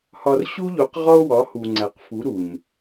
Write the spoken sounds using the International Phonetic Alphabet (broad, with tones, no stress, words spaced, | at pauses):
hɒ˧r ɕu˦ʎo˨˦qʁɒ˦o̯wɒ˨˦ hu˨ ŋ͡ǀæ˨qfu˨˦ ɾu˨ɲ